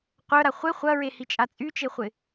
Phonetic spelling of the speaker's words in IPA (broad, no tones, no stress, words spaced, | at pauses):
qʷœɾa χʷe χʷɐɹehit͡ʃʼa t͡sʼyt͡ʃeχʷɪ